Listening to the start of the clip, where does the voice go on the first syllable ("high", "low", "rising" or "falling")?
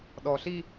low